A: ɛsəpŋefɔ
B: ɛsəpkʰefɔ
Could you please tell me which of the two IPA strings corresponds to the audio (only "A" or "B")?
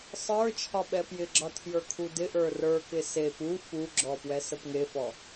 A